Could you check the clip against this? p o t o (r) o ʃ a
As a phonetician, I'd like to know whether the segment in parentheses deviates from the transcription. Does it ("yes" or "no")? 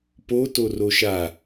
no